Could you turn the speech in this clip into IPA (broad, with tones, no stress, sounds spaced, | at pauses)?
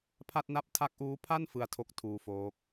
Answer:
pʰ a˥˩ t̚ n a˥˩ p̚ tʰ a˦˥ k̚ ʔ uː˦˥ pʰ a˥˩ n f ɯ˦˥ a̯ tʰ o˦˥ k̚ tʰ uː˧ f oː˦˥ k̚